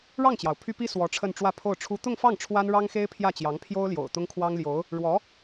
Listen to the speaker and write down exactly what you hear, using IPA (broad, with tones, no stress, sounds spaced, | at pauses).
ɻ ɑ˥˩ ŋ t͡ɕ j ɑ˩ ʊ̯ pʰ y˥ p i˥ s w ɔ˧˥ ʈ͡ʂʰ ə˥˧ n ʈ͡ʂ w ä˥˧ pʰ o˥˩ ʊ̯ ʈ͡ʂʰ u˥ t̪ ʊ˥˧ ŋ f ɑ˥˩ ŋ ʈ͡ʂʰ w a˥ n ɻ ɑ˥ ŋ x e˥ ɪ̯ pʰ j ä˥˩ t͡ɕ j ɑ˧˥ ŋ pʰ j o˥ ʊ̯ l j o̰˨˩ ʊ̯ t̪ ʊ˥ ŋ kʰ w ɑ˥ ŋ l j o˧˥ ʊ̯ | ɻ w ɔ˧˥